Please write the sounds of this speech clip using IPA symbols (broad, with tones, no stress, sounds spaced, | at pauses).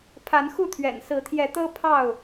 pʰ a˨˦ n x u˥˨ t̪ʰ ɥ ɛ̰˨˩ n s ɹ̩˨˦ t̪ʰ j ɛ˨˦ t̪ ɤ˦ pʰ ɑ˥˨ ʊ̯